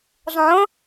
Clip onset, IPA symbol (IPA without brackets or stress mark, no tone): zˤ